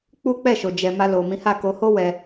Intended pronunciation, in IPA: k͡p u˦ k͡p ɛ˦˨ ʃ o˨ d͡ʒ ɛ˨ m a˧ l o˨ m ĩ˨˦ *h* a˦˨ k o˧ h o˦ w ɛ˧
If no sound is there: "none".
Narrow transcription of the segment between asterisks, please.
h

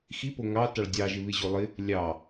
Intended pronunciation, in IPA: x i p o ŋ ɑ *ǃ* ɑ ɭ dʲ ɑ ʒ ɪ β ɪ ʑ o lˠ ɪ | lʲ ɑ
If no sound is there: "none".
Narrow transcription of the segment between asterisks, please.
t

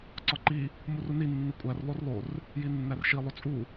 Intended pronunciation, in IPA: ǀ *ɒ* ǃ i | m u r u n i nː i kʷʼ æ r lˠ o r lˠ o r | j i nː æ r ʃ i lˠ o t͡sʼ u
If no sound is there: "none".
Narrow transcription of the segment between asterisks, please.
ɒ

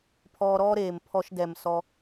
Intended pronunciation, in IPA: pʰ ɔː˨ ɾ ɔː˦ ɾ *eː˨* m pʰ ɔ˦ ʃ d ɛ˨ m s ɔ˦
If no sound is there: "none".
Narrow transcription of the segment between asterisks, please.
eː˨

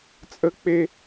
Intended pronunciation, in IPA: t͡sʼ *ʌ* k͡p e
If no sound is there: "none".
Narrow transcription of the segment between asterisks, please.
ə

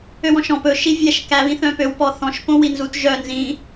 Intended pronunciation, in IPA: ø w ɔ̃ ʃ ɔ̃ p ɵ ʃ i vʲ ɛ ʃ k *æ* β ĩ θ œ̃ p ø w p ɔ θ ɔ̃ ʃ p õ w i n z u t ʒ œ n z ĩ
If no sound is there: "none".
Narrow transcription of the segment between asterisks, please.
æ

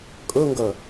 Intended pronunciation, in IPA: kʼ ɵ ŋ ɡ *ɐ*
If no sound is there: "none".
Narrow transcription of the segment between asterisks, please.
ɐ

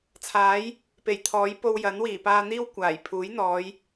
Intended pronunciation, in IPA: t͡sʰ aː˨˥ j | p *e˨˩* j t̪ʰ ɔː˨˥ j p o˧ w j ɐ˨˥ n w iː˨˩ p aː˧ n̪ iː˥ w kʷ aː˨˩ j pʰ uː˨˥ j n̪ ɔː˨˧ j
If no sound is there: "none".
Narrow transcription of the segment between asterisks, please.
e˨˩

